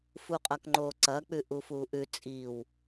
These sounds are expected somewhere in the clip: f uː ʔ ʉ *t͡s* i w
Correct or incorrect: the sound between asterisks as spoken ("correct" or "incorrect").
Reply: incorrect